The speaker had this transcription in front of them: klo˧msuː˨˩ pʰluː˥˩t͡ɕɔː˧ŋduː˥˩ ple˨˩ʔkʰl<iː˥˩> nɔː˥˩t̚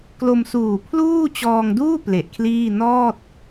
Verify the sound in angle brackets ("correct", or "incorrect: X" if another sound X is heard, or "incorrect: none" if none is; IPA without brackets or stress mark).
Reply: correct